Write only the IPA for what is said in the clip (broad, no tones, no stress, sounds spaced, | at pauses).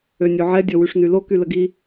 ø nʲ o ʕ ɛ dʲ ɔ w y ʂ n y l o k y l ə ɡ i